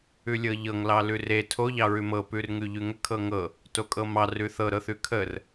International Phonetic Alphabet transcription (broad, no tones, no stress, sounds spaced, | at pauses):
ʉ lʲ ɤ ʎ ɤ ŋ l ɑ l ʉ r e tʰ o ʎ ɑ ɹ ʉ m ɤ p ʉ r ŋ ʉ ʎ ʉ ŋ ə kʰ ɤ ŋ ɤ | t o kʼ ɤ m ɑ r ʉ θ ɤ ɾ ɤ θ ʉ kʰ ə r